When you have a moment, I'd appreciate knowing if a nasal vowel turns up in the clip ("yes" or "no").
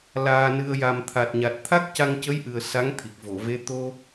no